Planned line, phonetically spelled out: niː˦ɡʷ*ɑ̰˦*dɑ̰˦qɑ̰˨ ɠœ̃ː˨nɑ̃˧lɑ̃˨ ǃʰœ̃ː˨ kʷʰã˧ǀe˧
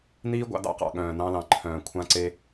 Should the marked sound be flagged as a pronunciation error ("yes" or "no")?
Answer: yes